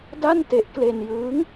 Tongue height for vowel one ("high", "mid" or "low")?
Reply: low